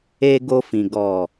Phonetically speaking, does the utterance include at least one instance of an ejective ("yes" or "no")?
no